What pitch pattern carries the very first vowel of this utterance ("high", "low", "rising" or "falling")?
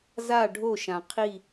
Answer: falling